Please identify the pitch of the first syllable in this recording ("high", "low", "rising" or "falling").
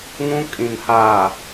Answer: high